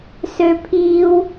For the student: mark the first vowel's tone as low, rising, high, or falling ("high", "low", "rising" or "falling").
high